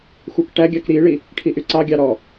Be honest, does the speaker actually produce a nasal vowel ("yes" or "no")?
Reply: no